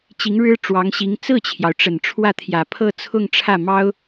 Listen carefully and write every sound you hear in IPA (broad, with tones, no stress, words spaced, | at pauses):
t͡ɕi˧˥ŋɻɻ̩˥ʈ͡ʂwɑ˧˥ŋɕi˧˥ŋ t͡sɹ̩˥˩t͡ɕʰjɑ˩ʊ̯ ʈ͡ʂə˨˩nʈ͡ʂʰwä˥˩t̪ʰjä˨˩ pʰɤ˥˧t͡sʰʊ˥˧ŋʈ͡ʂʰä˥˩ mɑ˥ʊ̯